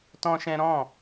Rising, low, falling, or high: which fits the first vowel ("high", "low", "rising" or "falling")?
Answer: high